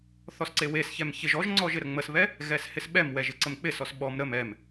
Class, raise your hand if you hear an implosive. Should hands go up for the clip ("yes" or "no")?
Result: yes